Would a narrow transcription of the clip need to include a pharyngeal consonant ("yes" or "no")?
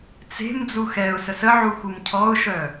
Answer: yes